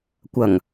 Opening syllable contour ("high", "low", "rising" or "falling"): low